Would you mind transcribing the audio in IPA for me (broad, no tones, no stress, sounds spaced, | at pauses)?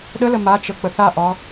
ɗ ə l ə m a t͡ʃ ə k͡p ə θ a ʔ ɒ